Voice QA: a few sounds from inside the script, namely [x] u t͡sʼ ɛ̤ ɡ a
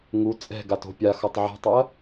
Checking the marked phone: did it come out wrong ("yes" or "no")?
yes